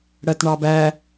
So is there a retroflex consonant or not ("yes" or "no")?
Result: yes